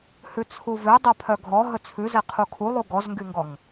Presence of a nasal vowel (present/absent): absent